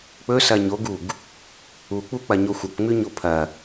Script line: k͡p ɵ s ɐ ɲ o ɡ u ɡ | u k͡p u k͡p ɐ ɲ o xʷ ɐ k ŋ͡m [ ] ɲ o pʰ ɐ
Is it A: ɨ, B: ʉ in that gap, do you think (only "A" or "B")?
B